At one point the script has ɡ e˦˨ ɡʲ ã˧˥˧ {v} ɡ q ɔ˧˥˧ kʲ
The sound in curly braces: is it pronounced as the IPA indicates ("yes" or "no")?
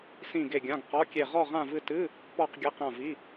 no